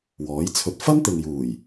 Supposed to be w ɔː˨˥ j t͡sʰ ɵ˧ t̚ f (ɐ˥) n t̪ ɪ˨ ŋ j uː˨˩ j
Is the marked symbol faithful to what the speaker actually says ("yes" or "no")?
yes